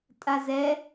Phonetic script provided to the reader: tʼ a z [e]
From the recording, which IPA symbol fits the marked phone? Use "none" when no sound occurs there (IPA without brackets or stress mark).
ɛ